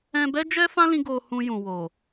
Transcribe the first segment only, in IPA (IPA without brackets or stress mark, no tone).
ɛ̃